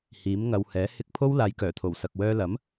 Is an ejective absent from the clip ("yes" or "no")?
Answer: yes